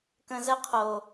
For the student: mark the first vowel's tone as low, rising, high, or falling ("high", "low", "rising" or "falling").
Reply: low